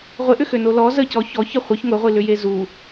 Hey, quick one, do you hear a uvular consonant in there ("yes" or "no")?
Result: yes